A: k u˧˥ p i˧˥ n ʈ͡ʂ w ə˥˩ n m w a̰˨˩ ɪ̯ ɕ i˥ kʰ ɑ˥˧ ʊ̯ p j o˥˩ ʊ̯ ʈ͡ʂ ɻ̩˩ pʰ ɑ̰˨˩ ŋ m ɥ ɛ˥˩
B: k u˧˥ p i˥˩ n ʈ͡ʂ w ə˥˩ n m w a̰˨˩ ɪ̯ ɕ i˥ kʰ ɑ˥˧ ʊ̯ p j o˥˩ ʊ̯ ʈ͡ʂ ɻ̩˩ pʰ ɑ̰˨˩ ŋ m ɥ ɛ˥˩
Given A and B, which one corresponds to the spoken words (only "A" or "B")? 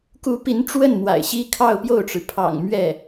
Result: A